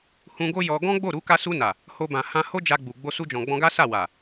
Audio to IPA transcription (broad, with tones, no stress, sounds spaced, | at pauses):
h ũ˧ ɡ o˦ j ɔ˧ ɡ ɔ̃˦ ɡ͡b o˦˨ ɾ u˨˦ k a˧ s u˧ n a˨ | h o˧ b ã˨ h ã˧ h o˦ d͡ʒ a˧ ɡ͡b u˨ ɡ͡b o˧ s u˧ d͡ʒ ɔ̃˨ ɡ͡b ɔ̃˧ ɡ a˦ s a˦˨ w a˨